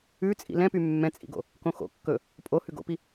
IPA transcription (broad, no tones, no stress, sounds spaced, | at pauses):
ʉ t͡sʼ ḭ l ɛ̃ p y mː ɛ̃ t͡sʼ ḭ ɡ o̰ | k õ x o̰ kː ɵ | pʼ o h ʉ ɡ o̰ p i